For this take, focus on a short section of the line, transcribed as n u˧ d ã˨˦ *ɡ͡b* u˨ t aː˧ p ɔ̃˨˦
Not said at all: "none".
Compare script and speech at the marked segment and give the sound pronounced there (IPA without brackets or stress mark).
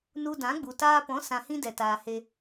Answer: ɡ͡b